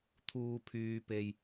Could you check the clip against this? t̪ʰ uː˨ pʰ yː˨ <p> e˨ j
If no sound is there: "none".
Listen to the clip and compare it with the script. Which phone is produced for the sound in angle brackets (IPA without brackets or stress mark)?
p